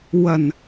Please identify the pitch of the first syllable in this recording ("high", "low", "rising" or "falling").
low